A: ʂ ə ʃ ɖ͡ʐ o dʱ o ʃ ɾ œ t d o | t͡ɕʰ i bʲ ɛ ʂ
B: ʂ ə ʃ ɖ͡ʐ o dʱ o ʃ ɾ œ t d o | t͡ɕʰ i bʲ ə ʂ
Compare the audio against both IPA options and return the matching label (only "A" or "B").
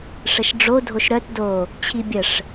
B